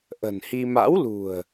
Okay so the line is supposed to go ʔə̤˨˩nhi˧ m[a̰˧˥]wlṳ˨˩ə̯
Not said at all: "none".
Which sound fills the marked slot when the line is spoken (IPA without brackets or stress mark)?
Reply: a̰˧˥